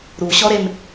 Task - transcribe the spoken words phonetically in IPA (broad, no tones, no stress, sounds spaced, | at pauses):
ɾ u ɕ ɔ ɾ e m